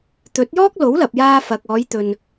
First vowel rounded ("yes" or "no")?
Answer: yes